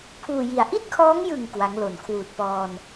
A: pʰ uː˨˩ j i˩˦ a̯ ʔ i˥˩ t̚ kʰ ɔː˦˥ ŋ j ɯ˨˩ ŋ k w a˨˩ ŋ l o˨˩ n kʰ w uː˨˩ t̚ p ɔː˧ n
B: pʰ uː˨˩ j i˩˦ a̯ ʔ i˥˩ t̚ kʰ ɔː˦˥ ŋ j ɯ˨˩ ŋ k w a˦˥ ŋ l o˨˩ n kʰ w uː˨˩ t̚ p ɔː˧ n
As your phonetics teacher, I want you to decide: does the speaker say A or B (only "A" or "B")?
B